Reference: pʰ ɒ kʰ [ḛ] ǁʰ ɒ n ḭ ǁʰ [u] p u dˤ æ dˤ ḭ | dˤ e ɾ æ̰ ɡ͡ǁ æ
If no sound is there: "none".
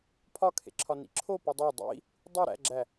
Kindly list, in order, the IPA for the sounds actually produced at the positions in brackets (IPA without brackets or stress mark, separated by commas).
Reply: ḛ, o